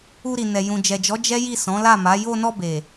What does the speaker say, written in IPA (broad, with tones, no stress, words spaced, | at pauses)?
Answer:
u˧ɾi˨nɛ˨ jũ˨ d͡ʒɛ˨d͡ʒɔ˨˦ d͡ʒɛ˦ji˦˨ sɔ̃˨˦la˦˨ma˨˦ jo˧nɔ˧be˨